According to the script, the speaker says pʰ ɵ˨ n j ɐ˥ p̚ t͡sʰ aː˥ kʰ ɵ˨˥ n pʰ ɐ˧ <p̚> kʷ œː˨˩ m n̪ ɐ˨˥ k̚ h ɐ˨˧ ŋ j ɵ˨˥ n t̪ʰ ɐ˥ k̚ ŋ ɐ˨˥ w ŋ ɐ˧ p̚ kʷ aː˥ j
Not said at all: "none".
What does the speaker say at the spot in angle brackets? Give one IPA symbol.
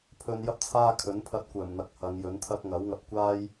t̚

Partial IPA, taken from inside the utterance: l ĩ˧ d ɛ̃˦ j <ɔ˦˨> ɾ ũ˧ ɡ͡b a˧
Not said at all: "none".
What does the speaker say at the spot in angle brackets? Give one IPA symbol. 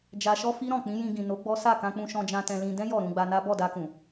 ɔ˦˨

